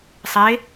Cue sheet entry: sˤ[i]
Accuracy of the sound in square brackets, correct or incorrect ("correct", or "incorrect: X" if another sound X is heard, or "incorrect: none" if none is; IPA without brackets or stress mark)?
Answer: incorrect: e